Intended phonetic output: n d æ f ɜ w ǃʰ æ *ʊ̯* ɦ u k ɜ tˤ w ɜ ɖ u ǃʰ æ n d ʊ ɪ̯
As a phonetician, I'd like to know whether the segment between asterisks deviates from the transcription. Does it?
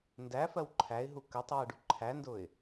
yes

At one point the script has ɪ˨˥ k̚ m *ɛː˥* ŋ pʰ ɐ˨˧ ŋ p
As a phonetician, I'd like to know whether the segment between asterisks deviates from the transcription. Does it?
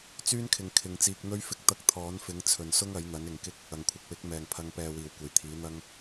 yes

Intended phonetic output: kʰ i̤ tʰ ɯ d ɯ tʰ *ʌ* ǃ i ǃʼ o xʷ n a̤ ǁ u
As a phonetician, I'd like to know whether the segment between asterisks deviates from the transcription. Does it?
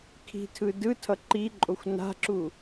no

